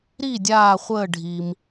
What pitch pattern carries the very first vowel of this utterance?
falling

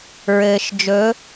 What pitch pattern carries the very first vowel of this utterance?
low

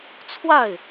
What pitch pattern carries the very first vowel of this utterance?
falling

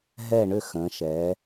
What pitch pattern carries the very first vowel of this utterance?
falling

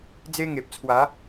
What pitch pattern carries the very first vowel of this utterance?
high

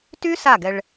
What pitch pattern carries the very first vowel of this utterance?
high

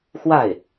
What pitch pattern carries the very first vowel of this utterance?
falling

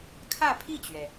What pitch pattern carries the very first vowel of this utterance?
falling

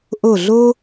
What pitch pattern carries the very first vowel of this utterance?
falling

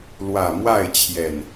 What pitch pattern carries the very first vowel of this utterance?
low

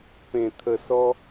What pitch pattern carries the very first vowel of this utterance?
low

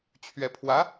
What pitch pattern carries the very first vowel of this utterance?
rising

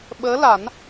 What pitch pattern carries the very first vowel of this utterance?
rising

